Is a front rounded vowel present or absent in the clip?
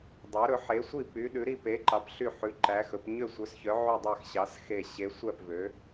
present